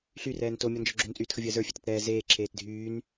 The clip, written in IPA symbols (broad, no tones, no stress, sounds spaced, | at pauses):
ɬ y r ɛː n t o mʲ ɔ n d͡ʒ ɔ ɡ͡ǁ o n t͡sʼ yː t x ə vʲ əː z ə˞ fʲ e t ə t ɾ ɛː z eː ǁʰ eː t dʱ yː n